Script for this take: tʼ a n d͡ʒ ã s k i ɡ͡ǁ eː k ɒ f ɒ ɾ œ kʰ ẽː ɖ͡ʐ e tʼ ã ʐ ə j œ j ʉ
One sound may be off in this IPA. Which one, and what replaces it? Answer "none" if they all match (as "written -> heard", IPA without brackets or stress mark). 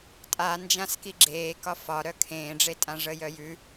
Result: none